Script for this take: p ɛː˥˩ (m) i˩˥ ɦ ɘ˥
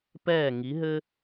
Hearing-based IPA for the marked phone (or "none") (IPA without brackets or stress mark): ŋ